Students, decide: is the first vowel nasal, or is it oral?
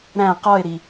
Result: nasal